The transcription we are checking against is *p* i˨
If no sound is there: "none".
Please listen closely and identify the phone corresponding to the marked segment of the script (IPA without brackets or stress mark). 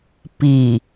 p